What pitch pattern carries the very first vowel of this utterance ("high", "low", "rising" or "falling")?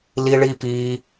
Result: high